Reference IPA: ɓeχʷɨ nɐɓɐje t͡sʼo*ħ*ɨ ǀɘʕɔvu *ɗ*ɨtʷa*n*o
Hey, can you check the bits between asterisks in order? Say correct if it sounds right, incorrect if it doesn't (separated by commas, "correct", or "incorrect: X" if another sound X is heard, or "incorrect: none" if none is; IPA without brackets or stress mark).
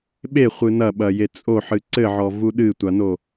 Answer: correct, correct, correct